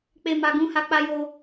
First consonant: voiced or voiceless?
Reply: voiceless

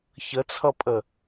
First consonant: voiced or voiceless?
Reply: voiceless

